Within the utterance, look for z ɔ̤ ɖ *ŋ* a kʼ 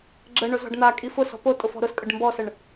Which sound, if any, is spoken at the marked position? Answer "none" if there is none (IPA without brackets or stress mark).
n̪